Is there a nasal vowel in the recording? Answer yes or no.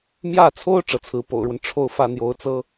no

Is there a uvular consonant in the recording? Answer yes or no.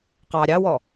yes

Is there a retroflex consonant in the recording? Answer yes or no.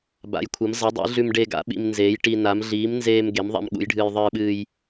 yes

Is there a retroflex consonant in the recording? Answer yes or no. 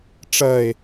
yes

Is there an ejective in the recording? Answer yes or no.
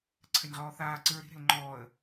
no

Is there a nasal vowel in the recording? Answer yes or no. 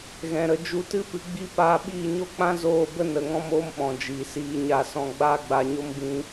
yes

